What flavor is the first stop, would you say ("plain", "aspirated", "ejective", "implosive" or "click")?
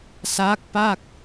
plain